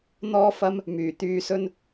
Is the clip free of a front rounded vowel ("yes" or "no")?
no